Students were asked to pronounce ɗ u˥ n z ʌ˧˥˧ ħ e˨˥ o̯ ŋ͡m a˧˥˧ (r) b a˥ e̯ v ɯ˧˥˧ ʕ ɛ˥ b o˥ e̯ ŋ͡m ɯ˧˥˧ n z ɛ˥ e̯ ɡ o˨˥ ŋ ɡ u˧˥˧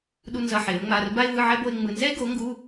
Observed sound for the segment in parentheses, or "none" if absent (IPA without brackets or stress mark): r